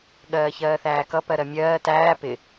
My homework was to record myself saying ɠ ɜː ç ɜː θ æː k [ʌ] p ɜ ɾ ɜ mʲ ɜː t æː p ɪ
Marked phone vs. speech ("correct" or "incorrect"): correct